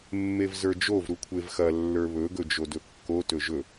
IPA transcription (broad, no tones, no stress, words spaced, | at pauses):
mːevzə˞d͡ʒov ɾukʷʰevxɐ lːə˞βɵ ɡɵd͡ʒodɵkːo tɵʒɵ